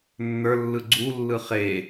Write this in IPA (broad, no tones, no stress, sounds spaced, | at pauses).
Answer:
nː ə˞ lː ɯ ɡ͡ǀ u lː ɯ χ e